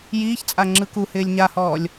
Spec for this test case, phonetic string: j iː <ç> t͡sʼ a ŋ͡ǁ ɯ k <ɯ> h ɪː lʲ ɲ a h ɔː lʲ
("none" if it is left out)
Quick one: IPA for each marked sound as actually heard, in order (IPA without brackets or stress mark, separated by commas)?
ç, u